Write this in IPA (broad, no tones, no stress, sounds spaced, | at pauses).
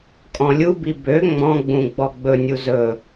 kʼ ɔ̃ lʲ u b i b ø ŋ͡m ɔ̃ ɡ͡b ũ ɡ͡b ɔ ɡ͡b ɵ nʲ u z ɵ